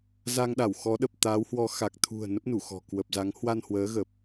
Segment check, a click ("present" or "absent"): absent